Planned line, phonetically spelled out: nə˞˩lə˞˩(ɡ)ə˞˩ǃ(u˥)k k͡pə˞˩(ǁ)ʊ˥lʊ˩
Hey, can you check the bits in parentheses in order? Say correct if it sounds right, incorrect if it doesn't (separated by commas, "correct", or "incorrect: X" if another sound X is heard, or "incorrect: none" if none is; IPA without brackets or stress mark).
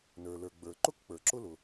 incorrect: ɡ͡b, incorrect: ʊ˥, correct